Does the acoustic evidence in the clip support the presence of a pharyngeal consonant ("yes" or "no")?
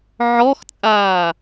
yes